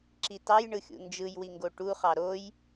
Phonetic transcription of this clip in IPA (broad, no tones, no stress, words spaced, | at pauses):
ǁitɑjɳɯxʲṵ nd͡ʒɯjwiŋɡo ʈuχɑ ɾoj